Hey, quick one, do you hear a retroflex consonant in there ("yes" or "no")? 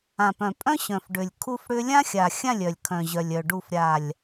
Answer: yes